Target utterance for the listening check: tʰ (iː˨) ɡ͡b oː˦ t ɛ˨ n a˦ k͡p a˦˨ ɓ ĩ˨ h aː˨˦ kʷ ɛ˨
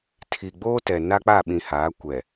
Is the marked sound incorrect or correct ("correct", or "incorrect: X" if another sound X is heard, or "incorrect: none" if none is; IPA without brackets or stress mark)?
incorrect: i˨